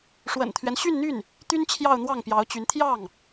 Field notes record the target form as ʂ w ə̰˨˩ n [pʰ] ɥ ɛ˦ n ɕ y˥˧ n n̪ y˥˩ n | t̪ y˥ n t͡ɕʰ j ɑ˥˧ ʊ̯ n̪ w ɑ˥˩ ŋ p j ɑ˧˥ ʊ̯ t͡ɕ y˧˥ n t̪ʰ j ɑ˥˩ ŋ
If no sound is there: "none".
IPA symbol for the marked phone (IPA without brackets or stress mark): t̪ʰ